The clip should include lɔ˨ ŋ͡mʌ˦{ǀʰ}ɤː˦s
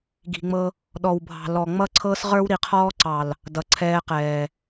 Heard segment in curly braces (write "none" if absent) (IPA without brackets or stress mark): ǀʰ